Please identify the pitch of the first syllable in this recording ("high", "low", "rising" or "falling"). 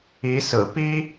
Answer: rising